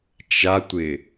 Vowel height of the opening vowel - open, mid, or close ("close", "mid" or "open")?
open